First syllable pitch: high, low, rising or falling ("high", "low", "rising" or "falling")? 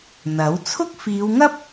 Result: rising